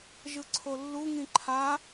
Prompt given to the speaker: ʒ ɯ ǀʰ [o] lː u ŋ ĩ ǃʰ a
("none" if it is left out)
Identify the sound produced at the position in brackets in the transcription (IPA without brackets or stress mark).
o